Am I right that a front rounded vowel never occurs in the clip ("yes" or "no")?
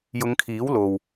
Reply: yes